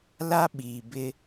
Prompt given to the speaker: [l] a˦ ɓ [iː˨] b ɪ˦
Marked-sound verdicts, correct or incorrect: correct, correct

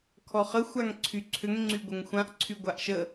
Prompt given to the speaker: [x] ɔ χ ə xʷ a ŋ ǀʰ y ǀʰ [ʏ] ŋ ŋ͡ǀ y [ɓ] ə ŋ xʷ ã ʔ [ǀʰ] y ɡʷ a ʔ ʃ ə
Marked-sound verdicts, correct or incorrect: incorrect: kʰ, correct, incorrect: ɡʷ, correct

